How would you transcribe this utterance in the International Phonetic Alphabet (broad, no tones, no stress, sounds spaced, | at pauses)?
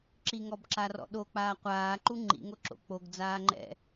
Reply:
ǁ i ŋ ɔ b ǁ a r ɔ̰ ɗ o k͡p aː qʷ aː ǃ u ŋ͡ǃ ḭ ŋ o ǁ o̰ k͡p o ɡ d͡z aː ŋ͡ǃ ɛ̰